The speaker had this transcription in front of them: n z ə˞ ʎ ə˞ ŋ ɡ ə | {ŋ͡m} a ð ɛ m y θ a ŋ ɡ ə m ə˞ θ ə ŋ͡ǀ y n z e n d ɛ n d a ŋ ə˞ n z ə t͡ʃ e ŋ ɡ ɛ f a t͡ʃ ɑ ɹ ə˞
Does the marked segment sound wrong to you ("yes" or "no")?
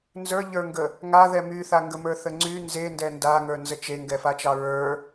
yes